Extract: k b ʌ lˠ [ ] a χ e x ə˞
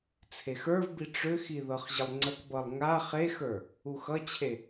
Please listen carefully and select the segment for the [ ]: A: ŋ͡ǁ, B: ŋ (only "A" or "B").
B